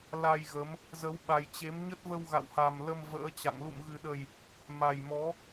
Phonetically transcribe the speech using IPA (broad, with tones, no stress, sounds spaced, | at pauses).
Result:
l a˧ j ɣ ə˨˦ m | z ə˨˦ w ɓ a˨˩ j t͡ɕ e˨˦ m ɲ ə˦˥ t̚ v ə˧ w ɣ a̰˧˨ w h a˨˩ m l ə˧ m v ə̰ː˧˥ t͡ɕ a̰˧˨ ŋ l ṵ˧˨ m ɣ ɨ˨˩ ɗ ə˨˩ j | m a˨˩ j m ɔ˨˦